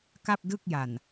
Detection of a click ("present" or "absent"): absent